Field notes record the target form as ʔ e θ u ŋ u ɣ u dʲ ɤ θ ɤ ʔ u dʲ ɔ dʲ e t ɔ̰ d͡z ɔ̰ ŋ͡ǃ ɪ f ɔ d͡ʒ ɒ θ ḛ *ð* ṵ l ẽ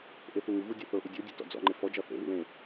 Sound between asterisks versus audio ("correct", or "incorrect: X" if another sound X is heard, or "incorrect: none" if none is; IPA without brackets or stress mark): correct